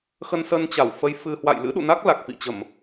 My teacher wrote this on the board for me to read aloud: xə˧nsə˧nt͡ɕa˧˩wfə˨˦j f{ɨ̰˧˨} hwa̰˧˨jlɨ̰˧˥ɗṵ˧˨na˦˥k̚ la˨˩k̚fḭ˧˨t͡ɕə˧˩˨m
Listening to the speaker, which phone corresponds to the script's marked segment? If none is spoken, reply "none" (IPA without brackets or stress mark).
ɨ˧